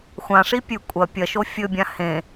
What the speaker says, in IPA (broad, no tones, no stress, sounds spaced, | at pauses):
xʷ ã ʂ i pʲ ʉ kʷʼ ɐ pʲ ɐ ʃ o fʲ ɵ bʲ ã h ẽ